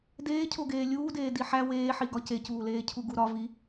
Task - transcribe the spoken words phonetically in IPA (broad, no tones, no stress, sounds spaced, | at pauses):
d eː cʰ o ɡ eː lʲ uː d eː d i ħ æ w eː ħ i ɡ ɒ c e c uː l eː cʰ u ɡ u ɾ ɒ v i